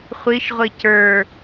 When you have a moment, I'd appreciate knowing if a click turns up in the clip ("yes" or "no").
no